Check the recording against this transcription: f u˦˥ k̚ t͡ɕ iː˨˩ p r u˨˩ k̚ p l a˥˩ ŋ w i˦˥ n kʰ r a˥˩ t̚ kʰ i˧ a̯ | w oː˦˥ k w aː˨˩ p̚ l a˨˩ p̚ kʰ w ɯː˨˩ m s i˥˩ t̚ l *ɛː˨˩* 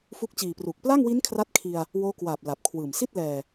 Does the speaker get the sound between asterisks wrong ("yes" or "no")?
no